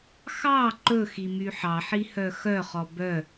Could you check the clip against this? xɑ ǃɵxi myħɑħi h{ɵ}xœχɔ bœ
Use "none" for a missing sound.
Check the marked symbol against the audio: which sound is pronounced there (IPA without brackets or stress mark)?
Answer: œ